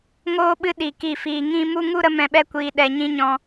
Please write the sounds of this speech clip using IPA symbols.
ŋ oː˧ ɓ ɨ˧ ɗ i˨ k i˦˨ f iː˧ ŋ ĩ˦ m u˦ ŋ u˦ ɾ ə˦ m ɛ̃˧ ɓ ɛ˦ kʷ iː˧ ɗ ɛ˧ ɲ ĩ˦ ɲ ɔ̃˦

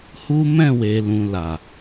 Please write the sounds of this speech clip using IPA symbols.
h u˦ m ɛ̃˦˨ w e˨ l ũ˨ l a˨

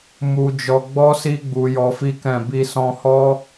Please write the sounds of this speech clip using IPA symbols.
m u˧ d͡ʒ ɔ˧ ɡ͡b ɔ˦ s i˦ ɡ͡b u˧ j ɔ˧ f i˦ k ɛ̃˦˨ b i˧ s ɔ̃˧ h ɔ˦

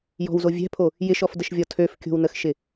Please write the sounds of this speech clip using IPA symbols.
j ɔ̤ w z o vʲ ɛ̤ pʰ o | j ɪ ʃ ɔ f d ə ʃ vʲ ɔ tʰ ø f kʲ o̤ w n ə x ʃ ɪ

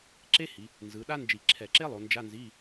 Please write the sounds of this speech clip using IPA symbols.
ǁ e˥ h i˩˧ | n z ɯ˩˧ ɗ a˥ n d͡ʒ i˧˩˧ ǁʰ ɛ˧˩˧ ǁ e˥ lˠ o˩˧ n d͡ʒ a˧˥˧ n z i˧˥˧

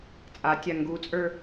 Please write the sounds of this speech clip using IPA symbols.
t͡sʼ a tʲ a ŋ ɡ u t͡sʼ ə˞

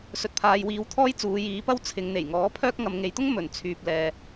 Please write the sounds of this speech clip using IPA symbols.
s ɵ˨ t̚ pʰ aː˨ j w iː˨˧ w t̪ʰ ɔː˥ j t͡s uː˨˧ j iː˨˧ p ɐ˥ w t͡sʰ ɪ˨˧ ŋ n̪ e˨˩ j ŋ ɔː˨˥ pʰ œː˥ k̚ ŋ ɐ˨ m ŋ e˨ j t̪ ʊ˥ ŋ m ɵ˨˩ n t͡sʰ yː˨ p̚ l ɛː˨

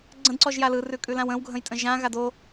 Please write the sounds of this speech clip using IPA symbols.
ɡ͡ǀ ə̃ d ǀ ɔ ʒ j a l ɯ r ʉ kʼ ʉ l ã w ə̃ w ɡʱ ə̃ j tʼ ə̃ ʒ ã ɣ a d o

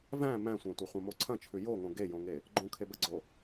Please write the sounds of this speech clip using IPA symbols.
v æ̃ m æ̃ sʷ æ̃ tʷ ɐ χʷ ɐ̃ m o ǀʰ ɐ̃ t͡ʃʰ ʉ j o ŋ õ ɡ e j õ ŋ e | ɡ͡ǃ õ kʰ e b ɐ ɡ͡ǀ o

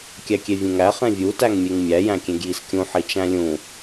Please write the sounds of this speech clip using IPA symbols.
kʲ æ kʲ e vʲ ẽ ŋ æ χ ẽ vʲ u t æ ŋ mʲ e ŋ mʲ æ j æ̃ kʲ ẽ ɡ j i s kʲ ũ ħ i t͡ʃ æ̃ lʲ ũ

